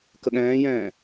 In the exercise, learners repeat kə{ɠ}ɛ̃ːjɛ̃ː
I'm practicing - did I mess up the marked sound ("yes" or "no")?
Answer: no